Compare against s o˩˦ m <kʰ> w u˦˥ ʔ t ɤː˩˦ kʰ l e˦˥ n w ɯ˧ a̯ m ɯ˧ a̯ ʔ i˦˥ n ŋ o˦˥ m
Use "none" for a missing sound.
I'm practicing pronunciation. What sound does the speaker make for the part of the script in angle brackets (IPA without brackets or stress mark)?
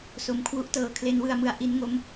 kʰ